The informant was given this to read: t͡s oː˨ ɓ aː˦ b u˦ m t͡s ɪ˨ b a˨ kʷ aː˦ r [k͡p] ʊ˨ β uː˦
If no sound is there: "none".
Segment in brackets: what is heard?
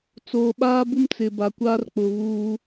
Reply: k͡p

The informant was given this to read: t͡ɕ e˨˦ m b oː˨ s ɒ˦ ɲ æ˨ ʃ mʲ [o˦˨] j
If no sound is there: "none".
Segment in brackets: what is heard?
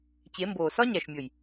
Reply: o˨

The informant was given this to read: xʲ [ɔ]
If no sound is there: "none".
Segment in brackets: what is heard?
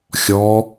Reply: ɔ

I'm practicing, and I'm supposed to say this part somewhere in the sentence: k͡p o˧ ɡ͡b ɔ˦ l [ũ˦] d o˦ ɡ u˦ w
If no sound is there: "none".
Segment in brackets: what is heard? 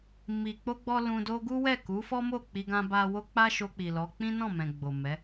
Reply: ũ˧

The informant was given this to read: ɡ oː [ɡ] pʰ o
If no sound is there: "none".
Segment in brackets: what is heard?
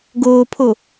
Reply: none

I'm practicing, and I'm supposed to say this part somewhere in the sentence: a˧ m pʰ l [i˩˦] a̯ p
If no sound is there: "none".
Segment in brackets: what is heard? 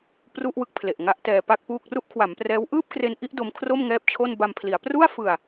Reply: i˩˦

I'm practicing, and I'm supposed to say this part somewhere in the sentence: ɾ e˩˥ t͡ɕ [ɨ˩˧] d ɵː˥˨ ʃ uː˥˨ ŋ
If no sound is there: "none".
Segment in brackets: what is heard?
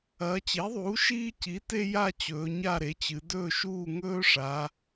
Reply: ɨ˩˧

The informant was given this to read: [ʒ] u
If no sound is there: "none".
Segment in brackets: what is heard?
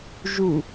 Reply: ʒ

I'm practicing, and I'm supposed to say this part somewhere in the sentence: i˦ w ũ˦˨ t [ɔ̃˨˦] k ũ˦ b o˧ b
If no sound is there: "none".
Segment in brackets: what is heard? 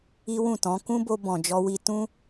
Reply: ɔ̃˨˦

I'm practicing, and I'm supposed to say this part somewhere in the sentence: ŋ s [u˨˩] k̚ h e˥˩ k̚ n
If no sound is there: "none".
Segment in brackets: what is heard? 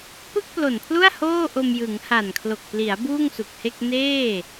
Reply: u˨˩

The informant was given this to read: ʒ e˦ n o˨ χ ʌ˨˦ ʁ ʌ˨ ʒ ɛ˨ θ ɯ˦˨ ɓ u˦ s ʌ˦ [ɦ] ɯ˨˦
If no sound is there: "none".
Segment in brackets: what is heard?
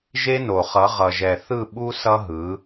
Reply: ɦ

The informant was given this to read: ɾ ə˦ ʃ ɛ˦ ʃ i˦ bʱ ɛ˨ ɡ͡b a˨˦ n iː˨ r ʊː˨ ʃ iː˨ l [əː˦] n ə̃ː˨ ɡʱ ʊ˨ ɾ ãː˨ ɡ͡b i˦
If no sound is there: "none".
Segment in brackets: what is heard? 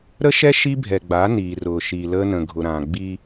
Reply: əː˦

